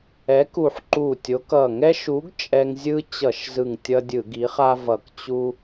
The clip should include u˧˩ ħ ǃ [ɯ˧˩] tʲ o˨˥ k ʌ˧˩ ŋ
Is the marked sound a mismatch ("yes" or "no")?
yes